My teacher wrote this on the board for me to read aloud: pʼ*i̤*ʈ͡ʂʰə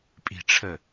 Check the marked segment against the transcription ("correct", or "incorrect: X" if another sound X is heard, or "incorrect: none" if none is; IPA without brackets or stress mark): correct